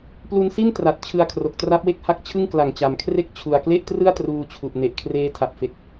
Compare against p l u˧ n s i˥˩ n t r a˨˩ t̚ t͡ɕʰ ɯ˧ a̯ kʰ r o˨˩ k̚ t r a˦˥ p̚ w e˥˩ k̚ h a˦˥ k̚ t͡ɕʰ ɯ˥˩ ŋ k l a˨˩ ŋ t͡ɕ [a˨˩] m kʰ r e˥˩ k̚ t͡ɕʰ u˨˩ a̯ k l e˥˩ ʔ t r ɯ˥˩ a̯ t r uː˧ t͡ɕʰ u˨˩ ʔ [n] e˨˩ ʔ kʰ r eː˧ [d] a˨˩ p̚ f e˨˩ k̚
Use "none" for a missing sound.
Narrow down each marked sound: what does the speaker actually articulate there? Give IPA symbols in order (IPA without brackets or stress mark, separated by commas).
a˨˩, n, tʰ